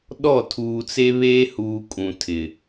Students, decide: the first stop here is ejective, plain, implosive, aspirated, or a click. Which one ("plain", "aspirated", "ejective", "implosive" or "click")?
implosive